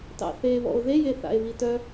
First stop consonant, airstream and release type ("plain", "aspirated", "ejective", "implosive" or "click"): plain